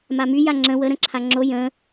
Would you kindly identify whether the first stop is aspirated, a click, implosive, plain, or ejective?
click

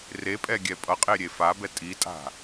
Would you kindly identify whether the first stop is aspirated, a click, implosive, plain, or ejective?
ejective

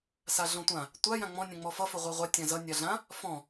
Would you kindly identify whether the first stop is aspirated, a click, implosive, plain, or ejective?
plain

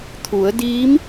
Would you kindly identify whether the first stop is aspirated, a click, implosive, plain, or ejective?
aspirated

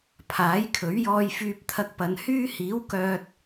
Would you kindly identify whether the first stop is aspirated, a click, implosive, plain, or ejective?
aspirated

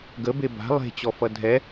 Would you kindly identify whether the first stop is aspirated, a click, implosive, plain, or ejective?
plain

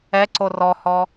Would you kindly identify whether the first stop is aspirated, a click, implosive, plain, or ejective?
click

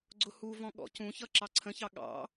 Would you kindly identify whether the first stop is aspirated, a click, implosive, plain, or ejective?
click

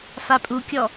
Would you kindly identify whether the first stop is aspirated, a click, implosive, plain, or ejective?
ejective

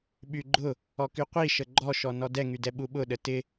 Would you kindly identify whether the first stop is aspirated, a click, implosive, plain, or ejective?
implosive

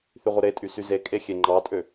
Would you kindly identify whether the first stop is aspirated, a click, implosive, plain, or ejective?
ejective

